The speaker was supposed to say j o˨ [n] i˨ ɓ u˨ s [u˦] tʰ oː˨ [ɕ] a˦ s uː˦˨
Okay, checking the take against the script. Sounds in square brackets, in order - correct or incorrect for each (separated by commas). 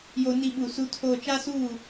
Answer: correct, correct, incorrect